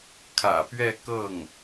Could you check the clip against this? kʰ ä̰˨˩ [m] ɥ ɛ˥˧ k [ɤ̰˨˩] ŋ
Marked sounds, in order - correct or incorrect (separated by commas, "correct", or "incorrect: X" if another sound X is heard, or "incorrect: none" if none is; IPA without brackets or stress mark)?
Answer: incorrect: p, incorrect: ɤ˥˩